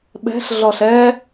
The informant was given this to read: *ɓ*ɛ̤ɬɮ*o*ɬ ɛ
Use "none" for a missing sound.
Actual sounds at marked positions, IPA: ɓ, ɔ

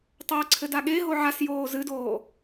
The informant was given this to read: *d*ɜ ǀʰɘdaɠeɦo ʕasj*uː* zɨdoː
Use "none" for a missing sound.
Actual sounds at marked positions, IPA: tˤ, oː

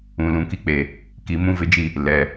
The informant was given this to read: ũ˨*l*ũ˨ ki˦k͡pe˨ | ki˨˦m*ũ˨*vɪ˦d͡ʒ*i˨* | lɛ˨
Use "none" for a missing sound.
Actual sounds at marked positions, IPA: l, ũ˦, i˦˨

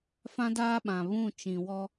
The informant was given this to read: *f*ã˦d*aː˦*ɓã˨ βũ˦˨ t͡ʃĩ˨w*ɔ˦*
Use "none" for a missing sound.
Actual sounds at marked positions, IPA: f, aː˦, ɔ˦

